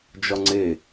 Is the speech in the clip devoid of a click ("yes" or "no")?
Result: no